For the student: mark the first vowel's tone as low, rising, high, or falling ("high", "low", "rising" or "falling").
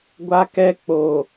high